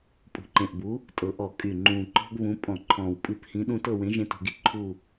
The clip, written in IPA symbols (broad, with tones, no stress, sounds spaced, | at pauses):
pʼ ṳ˨˩ ǃ ẽ˨˩ ʔ b u˨˥ | tʼ ɤ˨˩ ʔ ɔ˧˩˧ kʼ y˨˩ ŋ͡ǃ ũː˨˩ ǃ ɔ̤˦ ɡ β ũ˨˥ pʼ ɔ̃˧˩˧ ǃʰ ɔ̃ː˨˩ w pʼ ɨ˨˥ p h ĩ˨˥ ɗ ũ˦ t ɤ˦˨ w ẽ˨˥ ʒ ẽ˦ t ṳ˧˩˧ ɡ i˨˩ ǃʰ u˦˨